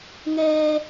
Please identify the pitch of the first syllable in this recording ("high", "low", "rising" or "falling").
high